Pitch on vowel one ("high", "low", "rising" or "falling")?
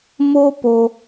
high